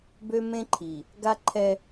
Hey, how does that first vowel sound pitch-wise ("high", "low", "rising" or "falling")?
high